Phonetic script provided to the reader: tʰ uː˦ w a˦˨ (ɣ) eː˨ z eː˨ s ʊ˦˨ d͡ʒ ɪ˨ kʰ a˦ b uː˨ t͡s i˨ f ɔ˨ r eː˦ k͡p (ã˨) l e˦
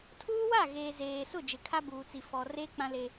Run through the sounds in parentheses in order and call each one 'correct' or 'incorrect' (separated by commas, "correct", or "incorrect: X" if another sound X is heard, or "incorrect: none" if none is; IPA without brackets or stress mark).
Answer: correct, incorrect: ã˦